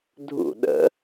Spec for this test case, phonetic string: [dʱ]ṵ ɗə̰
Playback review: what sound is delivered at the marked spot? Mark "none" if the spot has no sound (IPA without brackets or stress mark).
dʱ